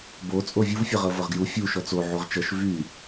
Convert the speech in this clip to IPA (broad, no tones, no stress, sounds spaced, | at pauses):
b o t͡sʼ o vʲ u v fʲ ʌ ʁ ɤ v ɤ ʁ ɡ j u fʲ u ʃ ɔ t͡s o ʕ u ʁ t͡ʃ ʌ ʃ v y